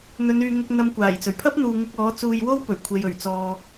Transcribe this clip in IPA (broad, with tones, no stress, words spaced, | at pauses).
n̪ɵ˨˧nyː˨ŋʊ˧k̚ n̪ɐ˨mkʷaː˨˩jt͡sɵ˨˩ɥpʰɐ˥p̚ n̪uː˨ŋʊ˧k̚ɔː˨˥ t͡suː˧jwo˥wpɵ˨˩ɥkʷʰe˨j ɵ˨˩ɥt͡sɔː˨